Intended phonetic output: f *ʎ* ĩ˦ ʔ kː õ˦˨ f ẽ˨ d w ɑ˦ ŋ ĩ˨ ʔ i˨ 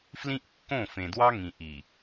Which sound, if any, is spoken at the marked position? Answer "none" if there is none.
l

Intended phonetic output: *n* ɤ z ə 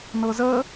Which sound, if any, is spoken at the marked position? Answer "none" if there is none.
n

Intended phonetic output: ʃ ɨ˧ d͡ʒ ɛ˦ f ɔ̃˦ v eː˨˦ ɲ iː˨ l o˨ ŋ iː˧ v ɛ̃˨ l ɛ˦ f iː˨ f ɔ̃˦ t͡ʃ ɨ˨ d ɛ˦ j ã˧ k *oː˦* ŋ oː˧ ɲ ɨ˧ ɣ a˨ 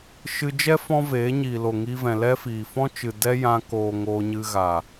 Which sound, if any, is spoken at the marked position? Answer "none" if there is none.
oː˨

